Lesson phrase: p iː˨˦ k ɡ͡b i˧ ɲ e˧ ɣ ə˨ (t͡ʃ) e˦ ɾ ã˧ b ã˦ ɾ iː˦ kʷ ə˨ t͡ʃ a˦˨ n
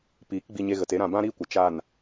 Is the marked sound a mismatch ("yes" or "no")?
yes